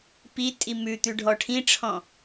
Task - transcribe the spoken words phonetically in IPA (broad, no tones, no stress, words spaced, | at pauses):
pitʼi mʉt̪ʉ ɖʱɔʈʰĩʈ͡ʂʰɔ̃